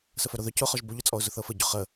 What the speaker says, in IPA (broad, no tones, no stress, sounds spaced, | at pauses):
s ə f œ ɾ o ð œ c ʊ χ ɔ ʒ b o ʎ ʊ t͡sʼ ɔ ʊ̯ z ʊ θ ɤ f ə ɟ ʊ χ ə